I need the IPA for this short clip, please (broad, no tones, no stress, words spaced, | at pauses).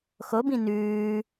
xobĩ nʉː